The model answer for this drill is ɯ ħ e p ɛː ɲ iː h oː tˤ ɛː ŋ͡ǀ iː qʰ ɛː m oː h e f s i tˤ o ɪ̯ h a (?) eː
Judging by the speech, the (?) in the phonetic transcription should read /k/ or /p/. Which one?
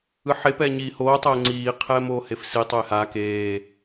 k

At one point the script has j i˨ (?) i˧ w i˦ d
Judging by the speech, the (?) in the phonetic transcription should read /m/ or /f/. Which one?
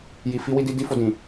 f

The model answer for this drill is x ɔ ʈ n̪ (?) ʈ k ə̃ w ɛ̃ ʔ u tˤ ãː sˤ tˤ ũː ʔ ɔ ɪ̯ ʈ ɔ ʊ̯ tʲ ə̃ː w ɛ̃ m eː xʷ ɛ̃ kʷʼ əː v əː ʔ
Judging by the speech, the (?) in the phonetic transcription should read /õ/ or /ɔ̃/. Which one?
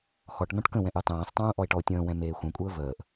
ɔ̃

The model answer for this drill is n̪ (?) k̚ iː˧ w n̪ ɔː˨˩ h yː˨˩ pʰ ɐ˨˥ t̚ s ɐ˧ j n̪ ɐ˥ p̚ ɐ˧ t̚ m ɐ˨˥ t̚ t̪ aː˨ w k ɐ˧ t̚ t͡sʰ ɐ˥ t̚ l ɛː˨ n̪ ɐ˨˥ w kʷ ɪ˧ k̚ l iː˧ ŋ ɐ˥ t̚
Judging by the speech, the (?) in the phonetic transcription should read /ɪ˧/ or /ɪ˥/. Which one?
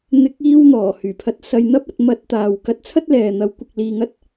ɪ˧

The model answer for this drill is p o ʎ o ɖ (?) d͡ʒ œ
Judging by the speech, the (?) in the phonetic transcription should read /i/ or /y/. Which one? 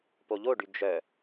y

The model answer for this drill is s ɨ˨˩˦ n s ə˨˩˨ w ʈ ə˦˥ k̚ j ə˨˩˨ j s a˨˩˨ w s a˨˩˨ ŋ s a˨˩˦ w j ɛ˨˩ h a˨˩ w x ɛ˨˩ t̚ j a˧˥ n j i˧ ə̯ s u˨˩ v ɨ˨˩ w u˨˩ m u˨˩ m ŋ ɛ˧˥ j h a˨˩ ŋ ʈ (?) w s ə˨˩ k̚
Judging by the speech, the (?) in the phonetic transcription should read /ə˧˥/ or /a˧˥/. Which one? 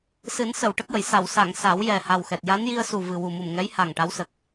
a˧˥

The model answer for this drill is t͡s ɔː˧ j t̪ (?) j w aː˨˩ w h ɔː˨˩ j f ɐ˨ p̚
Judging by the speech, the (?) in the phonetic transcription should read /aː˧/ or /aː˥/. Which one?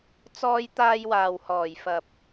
aː˧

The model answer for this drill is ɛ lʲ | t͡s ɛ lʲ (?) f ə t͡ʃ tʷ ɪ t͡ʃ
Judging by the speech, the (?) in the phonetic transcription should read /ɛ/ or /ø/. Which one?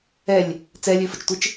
ø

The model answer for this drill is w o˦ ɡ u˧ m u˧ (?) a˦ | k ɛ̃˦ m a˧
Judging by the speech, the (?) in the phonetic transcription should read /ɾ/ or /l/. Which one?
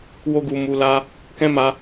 l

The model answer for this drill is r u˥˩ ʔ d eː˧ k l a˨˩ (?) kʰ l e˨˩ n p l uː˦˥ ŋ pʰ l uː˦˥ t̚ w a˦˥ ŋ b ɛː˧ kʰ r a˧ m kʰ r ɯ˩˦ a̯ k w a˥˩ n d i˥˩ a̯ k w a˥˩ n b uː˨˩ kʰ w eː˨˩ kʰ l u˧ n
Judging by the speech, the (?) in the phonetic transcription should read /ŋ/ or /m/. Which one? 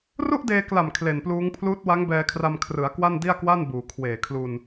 m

